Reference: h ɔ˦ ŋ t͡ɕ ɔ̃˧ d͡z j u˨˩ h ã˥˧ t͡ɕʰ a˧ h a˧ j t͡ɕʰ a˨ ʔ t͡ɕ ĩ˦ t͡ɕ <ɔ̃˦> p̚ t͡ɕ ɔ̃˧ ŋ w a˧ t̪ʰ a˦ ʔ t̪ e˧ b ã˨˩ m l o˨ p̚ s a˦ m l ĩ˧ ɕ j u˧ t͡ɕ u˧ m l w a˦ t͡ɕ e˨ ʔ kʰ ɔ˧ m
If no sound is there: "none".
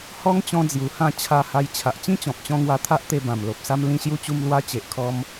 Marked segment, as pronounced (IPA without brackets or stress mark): ɔ̃˨